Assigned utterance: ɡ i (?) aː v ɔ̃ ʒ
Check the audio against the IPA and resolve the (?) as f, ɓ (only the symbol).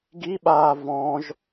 ɓ